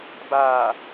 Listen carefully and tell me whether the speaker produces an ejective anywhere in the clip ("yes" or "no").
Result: no